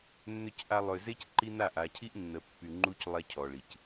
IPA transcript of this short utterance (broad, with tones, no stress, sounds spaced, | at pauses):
nː ʏ˨ c ʔ a˨ lˠ ø˨ z e˦ c ǃ i˦ n a˦˨ ʔ a˨ cʰ i˦ ʔ nː ə˨ pː y˨ ŋ͡ǃ u˦ c lˠ ɛ˦ cʰ ɔ˨ ɭ i˨ c